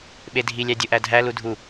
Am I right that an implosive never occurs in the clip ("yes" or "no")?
no